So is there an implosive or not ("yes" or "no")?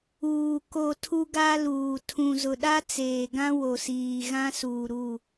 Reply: yes